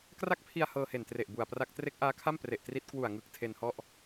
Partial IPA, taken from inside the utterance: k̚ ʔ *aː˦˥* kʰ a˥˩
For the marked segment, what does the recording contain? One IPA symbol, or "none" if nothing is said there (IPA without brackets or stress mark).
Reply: aː˦˥